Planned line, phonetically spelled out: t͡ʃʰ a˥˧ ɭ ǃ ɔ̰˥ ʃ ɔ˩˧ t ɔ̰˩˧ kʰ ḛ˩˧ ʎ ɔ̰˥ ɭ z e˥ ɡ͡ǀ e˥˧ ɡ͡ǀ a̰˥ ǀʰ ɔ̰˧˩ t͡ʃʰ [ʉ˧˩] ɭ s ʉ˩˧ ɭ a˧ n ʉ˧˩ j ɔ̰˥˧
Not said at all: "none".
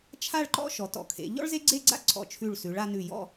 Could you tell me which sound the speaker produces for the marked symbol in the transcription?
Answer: ʉ˧˩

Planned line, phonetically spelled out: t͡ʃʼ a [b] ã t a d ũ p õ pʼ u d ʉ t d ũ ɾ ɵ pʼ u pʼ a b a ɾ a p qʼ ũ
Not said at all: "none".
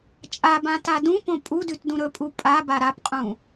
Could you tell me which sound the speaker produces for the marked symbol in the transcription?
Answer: b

